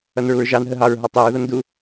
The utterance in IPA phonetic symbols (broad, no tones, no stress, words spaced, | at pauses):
ʌnɹuɹʒɑn ɦəɦɑɹ ɦɑtˤeɹ ðʌndu